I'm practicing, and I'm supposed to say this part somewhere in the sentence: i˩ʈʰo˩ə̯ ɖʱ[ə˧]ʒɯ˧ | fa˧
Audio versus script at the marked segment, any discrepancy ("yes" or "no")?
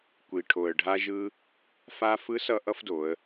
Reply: yes